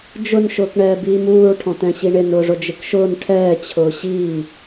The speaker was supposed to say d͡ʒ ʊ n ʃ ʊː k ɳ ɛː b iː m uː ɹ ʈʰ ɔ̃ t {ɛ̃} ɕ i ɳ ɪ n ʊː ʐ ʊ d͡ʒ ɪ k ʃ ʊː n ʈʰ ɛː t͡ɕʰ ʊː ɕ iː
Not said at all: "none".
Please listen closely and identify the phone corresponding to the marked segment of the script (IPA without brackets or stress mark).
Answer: ɛ̃